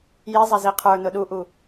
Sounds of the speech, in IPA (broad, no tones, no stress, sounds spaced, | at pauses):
j i zˤ ɛ z i qʰ ə˞ n ʊ ɗ u ʔ u